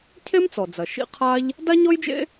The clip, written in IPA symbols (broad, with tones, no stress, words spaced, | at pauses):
cʰe˥mt͡sɔ˩d͡zɐ˩ ʃḭ˥qʰa˥ʎ | da˥ɲɔ˥jd͡ʒḛ˥